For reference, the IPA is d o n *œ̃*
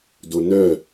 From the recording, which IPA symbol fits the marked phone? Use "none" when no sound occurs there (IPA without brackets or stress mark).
œ